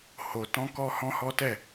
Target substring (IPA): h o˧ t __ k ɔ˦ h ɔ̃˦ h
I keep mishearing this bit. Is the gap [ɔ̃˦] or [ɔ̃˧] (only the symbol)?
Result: ɔ̃˦